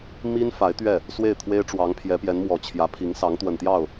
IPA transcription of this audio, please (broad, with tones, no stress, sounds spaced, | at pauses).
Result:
m i˥ n f a˧˥ ɪ̯ t̪ ɥ ɛ˥˩ | s w e˥˩ ɪ̯ t̪ʰ w e˥ ɪ̯ ʈ͡ʂ w ɑ˧˥ ŋ pʰ j ɛ˧˥ p j ɛ˧˥ n m w ɔ˨˩ t͡ɕʰ j ä˧˥ pʰ i˧˥ ŋ s ɑ˧˥ ŋ t̪ w ə˨˩ n t̪ j ɑ˥˩ ʊ̯